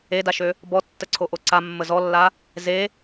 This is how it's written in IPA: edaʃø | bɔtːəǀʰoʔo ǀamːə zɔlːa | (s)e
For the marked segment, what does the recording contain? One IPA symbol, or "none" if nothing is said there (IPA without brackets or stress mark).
z